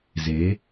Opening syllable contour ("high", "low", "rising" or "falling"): rising